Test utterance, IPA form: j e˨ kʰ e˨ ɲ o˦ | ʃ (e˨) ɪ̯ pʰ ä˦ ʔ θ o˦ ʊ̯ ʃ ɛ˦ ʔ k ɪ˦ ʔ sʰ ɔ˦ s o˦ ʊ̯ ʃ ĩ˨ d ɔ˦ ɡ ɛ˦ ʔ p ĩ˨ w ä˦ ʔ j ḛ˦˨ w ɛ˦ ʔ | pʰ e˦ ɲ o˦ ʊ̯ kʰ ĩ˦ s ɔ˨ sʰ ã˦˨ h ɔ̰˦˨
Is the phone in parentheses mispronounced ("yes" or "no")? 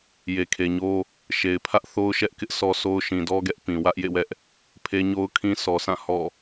no